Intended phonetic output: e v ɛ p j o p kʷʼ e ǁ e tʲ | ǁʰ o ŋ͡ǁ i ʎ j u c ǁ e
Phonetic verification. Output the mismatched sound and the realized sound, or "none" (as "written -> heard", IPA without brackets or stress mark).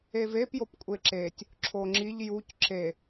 ɛ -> e